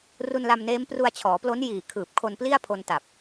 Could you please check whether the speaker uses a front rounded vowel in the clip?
no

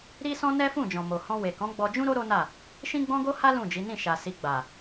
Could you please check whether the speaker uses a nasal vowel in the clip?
yes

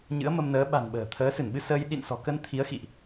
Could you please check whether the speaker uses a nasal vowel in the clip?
no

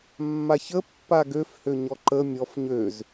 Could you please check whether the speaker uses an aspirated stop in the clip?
no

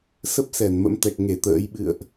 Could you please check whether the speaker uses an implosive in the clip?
yes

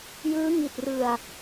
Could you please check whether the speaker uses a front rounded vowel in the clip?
no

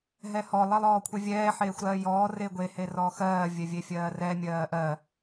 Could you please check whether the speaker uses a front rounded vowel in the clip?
no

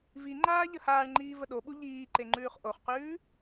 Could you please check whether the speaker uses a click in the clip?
yes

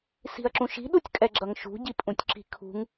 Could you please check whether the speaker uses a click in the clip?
yes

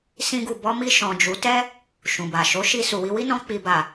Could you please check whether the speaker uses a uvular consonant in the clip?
no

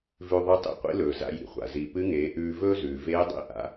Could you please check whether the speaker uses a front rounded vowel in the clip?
no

